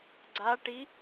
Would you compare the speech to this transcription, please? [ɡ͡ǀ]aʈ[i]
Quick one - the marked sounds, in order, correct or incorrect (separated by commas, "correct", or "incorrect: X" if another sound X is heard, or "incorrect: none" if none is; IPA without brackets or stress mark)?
correct, correct